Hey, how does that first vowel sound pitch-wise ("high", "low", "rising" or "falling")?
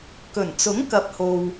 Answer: low